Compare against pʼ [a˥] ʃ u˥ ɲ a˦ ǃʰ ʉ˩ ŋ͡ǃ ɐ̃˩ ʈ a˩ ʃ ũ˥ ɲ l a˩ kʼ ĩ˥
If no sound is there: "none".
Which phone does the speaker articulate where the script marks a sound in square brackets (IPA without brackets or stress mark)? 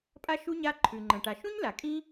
a˥